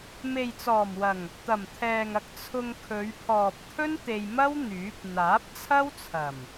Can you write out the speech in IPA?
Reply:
me˨jt͡sɔː˨˩mwɐ˨˩ŋ | t̪ɐ˨˩mt̪ʰɛː˨ŋ ɐ˧k̚ t͡sʰʊ˧ŋkʰɵ˨˧ɥ pʰɔː˨p̚t̪ʰɵ˥n t̪e˧j mɐ˥w n̪yː˨˥p̚ n̪aː˨˥p̚t͡sʰɐ˥wt͡sʰɐ˨˩m

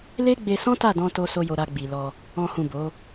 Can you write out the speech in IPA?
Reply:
le˦ ɡ͡be˧sɔ̃˦ta˦˨dɔ̃˧ to˦so˦jo˧ ɾa˧ɡ͡bi˨lɔ˧ | ɔ̃˦hũ˦˨ bo˨˦

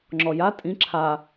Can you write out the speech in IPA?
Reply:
ŋ͡ǁɔja tʼĩ ǁʰa

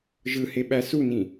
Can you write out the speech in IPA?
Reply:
ʒɯheɓæ sunĩ

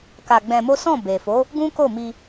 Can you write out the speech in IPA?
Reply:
ka˧ɡ͡bɛ̃˧mo˦ sɔ̃˦˨be˨fo˨˦ | ɡũ˦ko˦˨ mi˧

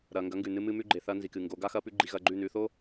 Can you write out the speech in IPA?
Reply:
ɾɐː˨ŋɡɐ˨˦ŋɡʉ˨nɨ˧ mɨ˧ mʉ˧ɡ͡ǃe˨ θɐː˧ nzi˨kɨ˨ ŋɡo˨˦ɡa˦xɐː˦pʉ˦ ɡ͡ǃi˧ɣɐː˧ɡ͡ǃʉ˦˨ nʉː˧θo˦

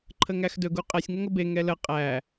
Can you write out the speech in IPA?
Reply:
ǃʰəŋæxdɵɡ uqʼɛsʲ ŋəŋəbe ŋɛlə qʼæ

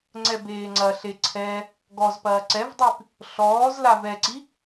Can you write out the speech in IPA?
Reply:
ŋ͡ǀɛbeːŋ͡ǀɐɬe ǀʰɛ | ɡɔzpɐː ǀɛvdˤip | ɬɔːzla vɛǀi

